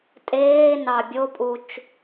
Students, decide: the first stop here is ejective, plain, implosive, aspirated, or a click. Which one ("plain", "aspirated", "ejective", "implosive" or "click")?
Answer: ejective